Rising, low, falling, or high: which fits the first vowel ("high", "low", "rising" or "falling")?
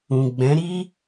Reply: low